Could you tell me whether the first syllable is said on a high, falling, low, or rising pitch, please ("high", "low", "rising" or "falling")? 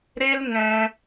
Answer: high